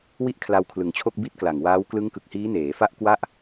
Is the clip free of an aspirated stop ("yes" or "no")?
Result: no